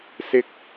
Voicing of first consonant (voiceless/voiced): voiceless